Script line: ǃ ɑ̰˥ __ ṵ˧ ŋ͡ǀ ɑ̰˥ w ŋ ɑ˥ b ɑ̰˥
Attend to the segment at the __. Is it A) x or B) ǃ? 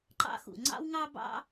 A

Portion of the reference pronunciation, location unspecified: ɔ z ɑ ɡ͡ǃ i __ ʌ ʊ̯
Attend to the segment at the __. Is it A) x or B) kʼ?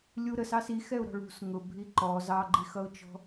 A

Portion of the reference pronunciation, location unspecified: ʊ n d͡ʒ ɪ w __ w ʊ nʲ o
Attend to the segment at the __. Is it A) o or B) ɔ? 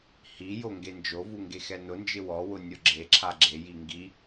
B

